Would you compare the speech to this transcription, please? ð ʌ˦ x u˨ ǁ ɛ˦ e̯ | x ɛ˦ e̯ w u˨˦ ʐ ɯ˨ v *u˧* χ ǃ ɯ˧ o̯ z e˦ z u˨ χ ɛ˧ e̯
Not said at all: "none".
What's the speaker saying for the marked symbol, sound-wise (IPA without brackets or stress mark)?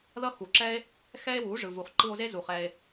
u˨